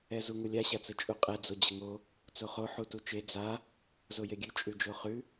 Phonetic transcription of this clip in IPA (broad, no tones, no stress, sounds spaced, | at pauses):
ɛ z u ŋ u lʲ a ɕ a t͡s ə t͡ʃʼ u qʼ ɛ d͡z o d͡ʑ ə ŋ o | t͡s o χ o ħ u t u t͡ʃ e d͡z a | z o j e ɡʲ ʉ t͡ʃʼ ʉ d͡ʒ o χ ʉ